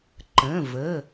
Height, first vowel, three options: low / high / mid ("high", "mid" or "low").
mid